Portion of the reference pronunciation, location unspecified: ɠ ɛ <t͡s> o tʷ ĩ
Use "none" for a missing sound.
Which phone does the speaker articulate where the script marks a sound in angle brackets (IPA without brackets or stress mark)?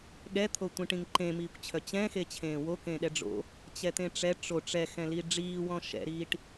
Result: t̪ʰ